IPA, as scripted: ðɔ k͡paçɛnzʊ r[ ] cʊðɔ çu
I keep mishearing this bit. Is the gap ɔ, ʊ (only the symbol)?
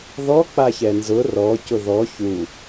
ɔ